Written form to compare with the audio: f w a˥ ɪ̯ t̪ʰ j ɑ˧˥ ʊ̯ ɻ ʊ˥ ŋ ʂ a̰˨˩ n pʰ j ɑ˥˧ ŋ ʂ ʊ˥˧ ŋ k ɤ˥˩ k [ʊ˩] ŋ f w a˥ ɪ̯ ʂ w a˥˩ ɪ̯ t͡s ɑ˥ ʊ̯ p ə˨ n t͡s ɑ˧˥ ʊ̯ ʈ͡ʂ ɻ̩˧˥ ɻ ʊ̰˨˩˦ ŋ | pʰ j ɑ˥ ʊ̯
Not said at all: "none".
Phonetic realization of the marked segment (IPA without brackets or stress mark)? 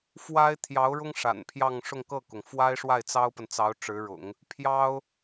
ʊ˩